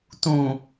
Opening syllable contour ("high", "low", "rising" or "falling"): low